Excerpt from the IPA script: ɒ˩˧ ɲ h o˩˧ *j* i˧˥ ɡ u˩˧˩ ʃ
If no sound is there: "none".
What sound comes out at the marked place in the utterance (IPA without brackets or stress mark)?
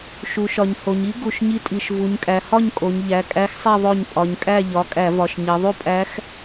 ɲ